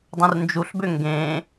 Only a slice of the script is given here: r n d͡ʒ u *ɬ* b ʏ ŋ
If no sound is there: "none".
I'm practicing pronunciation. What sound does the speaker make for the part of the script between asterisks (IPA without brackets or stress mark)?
ɬ